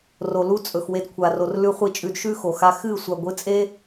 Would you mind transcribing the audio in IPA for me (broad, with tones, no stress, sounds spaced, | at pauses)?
r o˨ l u˦ t͡sʼ ɵ˨ x w e˧ d kʷʰ a˨ r o˨ r l ʉ˧ χʷ i˧ t͡ʃʼ ʉ˧ d ʃ ʉ˦ x o˨ x a˧ x ɨ˦˨ sʷ a˨ ɡʷ ɨ˨˦ t͡sʼ e˦